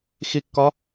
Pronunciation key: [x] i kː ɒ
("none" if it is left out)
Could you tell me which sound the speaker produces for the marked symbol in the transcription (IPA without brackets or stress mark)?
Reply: x